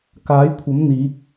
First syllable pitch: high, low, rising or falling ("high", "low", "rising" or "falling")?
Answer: rising